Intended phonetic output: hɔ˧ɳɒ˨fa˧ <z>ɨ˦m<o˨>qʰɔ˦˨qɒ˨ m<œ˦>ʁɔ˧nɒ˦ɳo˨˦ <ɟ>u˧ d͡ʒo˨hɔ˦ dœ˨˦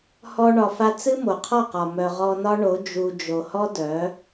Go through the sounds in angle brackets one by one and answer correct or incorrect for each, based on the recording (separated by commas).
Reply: incorrect, correct, incorrect, incorrect